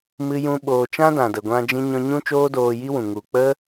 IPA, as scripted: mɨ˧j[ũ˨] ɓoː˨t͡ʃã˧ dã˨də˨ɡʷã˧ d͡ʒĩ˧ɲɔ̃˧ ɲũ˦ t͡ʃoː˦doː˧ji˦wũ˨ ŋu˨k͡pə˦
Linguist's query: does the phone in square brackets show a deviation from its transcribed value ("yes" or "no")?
yes